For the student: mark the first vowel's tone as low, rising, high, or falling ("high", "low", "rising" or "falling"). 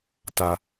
low